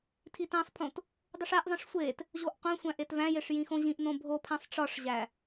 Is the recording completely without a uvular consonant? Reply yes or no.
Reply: no